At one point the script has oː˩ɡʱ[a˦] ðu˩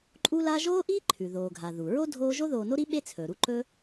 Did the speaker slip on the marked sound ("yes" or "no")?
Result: yes